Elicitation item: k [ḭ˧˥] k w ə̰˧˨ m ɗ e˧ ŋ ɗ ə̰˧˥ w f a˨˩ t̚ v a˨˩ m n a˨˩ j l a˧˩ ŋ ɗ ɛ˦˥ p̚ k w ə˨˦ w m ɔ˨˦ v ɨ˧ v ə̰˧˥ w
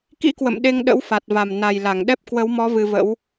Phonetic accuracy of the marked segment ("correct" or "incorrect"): correct